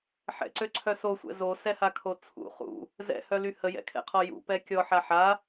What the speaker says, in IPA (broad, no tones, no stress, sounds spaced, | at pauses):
ħ ɛ̰ ǀ ø ǀʰ œ s o sʷ ɛ̰ z o s ɛ h a kʰ o t͡sʰ ṵ χ ṵ | z ɛ̰ h œ l y h ə j ɛ̰ kʰ ɛ̰ qʰ ɔ j ṵ p ɛ kʲ ɔ ħ a ħ a